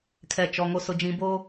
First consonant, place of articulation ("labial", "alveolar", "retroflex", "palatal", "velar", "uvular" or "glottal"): velar